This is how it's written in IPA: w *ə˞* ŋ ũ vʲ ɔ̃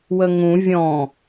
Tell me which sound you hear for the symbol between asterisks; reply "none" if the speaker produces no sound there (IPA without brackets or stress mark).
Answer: ə